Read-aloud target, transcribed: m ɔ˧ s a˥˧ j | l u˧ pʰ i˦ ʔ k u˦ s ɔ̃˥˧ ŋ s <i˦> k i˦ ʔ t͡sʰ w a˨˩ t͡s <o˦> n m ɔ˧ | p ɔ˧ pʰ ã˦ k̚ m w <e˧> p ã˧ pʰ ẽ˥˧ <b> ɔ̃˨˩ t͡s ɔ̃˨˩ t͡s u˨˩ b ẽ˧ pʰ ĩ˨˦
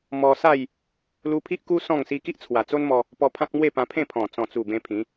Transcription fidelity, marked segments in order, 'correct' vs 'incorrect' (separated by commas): correct, correct, incorrect, incorrect